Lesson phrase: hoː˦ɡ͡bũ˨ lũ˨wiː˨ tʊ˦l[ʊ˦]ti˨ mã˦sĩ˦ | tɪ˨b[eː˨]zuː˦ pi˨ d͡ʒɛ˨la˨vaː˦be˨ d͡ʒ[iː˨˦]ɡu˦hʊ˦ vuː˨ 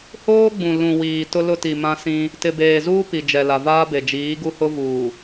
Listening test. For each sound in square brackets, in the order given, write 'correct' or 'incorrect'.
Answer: correct, correct, correct

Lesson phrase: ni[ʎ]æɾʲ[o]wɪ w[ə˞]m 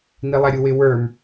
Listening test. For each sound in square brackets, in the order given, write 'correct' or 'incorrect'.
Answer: incorrect, incorrect, correct

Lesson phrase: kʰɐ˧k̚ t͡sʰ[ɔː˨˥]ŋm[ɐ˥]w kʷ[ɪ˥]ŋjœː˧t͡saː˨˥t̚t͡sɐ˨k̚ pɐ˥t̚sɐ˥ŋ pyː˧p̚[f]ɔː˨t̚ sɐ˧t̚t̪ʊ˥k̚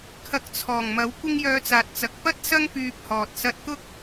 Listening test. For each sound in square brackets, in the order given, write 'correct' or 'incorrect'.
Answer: incorrect, incorrect, correct, incorrect

